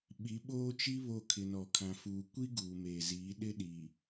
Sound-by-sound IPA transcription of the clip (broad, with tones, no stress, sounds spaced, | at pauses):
ɓ i˨˦ ɓ oː˦ t͡ʃ i˦ β o˦˨ kʰ ɪ˨ n ɔ˨ kʰ ã˨ f uː˨ kʷ i˦ ɡ uː˨ m eː˨ z iː˨˦ ɗ ɪ˦ ɗ i˨